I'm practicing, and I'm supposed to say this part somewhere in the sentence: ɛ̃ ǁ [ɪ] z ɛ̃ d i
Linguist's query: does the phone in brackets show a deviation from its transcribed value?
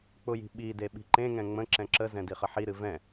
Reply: yes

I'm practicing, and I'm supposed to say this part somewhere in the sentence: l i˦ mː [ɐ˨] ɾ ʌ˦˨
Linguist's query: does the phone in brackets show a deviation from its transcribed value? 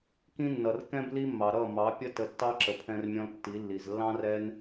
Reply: yes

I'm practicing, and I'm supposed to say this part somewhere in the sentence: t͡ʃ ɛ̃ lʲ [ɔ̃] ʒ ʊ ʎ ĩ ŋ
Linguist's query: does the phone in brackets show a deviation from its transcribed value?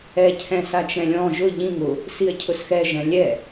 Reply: no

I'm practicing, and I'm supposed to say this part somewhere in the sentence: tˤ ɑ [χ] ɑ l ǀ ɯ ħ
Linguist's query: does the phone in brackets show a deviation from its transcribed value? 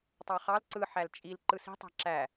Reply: no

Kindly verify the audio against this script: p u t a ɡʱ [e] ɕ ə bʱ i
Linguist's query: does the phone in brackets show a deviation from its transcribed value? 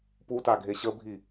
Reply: no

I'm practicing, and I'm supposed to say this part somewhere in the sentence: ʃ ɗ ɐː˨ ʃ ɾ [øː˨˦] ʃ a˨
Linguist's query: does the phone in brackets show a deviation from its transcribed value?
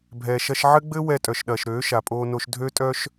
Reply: no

